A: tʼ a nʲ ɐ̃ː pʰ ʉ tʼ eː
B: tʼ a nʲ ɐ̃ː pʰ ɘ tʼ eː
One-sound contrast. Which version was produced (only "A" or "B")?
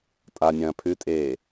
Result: A